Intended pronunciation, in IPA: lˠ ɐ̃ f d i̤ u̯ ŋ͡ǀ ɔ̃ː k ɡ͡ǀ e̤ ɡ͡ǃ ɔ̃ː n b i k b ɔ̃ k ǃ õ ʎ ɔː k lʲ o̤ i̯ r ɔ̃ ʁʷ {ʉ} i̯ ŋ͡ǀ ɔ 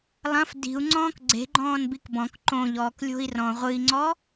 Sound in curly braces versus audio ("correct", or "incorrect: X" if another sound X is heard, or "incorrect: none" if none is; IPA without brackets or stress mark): incorrect: ɨ